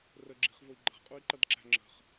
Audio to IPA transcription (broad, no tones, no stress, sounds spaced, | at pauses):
r ə ɡ͡ǁ i̤ χ v ʊ i̯ ɡ͡ǃ ə̤ ʁ qʼ u i̯ ǃ ʌ d ǁ æ̤ ŋ͡ǁ ə̤ χ